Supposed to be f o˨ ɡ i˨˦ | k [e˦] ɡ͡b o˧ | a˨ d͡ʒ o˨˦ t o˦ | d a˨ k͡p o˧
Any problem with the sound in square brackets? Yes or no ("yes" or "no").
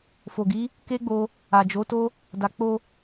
no